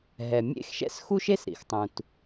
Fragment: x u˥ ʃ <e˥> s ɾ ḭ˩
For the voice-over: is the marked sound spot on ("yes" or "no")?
yes